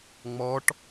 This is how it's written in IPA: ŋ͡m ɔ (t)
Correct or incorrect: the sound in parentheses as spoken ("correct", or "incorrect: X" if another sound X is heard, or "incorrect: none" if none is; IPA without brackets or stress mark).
incorrect: ʈ